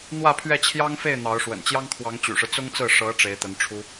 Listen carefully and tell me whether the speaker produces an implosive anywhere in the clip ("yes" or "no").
no